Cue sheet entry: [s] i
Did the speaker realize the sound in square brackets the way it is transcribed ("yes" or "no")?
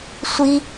no